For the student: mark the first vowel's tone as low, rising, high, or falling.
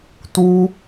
high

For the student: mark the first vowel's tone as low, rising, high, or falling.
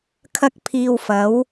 high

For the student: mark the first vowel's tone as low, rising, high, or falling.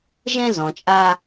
high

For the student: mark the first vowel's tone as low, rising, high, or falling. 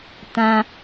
high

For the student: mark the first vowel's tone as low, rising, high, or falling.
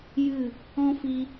falling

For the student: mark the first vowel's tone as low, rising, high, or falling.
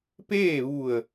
falling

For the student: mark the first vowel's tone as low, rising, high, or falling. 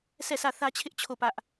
falling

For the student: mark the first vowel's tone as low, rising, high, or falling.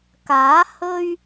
rising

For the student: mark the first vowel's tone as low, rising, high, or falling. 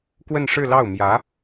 falling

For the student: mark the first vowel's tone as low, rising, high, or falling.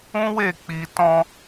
high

